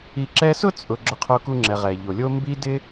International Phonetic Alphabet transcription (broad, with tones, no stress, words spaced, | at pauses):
i˨ǁɛ˦sʊ˥t͡sʼʊ˨ ɡ͡ǁʊ˨qʰo˨ku˨ŋ͡ǁɛ˩ ʁɛ˩ʎo˩lʲo˦ mbi˦ dɪ˥